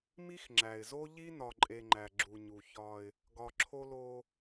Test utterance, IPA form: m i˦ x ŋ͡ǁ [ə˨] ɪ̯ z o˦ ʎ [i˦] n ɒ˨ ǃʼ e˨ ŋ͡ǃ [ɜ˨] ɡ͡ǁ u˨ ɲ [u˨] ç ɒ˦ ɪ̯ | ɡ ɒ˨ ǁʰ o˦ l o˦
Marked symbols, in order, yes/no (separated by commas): no, yes, no, yes